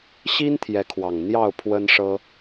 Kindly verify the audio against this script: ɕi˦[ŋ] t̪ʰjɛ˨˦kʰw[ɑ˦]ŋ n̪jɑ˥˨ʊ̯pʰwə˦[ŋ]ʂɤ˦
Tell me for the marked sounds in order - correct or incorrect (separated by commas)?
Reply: incorrect, incorrect, incorrect